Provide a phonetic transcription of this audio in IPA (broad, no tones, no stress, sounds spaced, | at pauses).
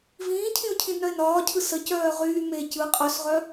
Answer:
v ĩː cʰ ĩ ʊ̯ cʰ ĩ d n œ ɪ̯ n ɒː cʰ ɯ s ə c œː ʁ yː m e c ɯ qʼ œ s ʁ œ